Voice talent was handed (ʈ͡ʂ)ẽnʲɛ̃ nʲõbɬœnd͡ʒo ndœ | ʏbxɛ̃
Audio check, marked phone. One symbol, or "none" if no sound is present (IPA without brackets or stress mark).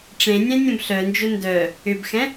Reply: ʈ͡ʂ